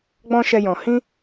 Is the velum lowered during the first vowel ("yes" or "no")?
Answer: yes